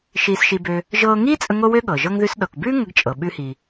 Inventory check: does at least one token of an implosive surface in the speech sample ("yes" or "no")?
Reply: yes